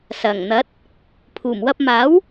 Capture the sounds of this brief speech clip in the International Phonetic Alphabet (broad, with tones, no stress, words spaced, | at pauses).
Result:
sɐ˨˩ŋn̪ɐ˨˥t̚ | pʰuː˨˩mwɐ˧p̚maː˨˥w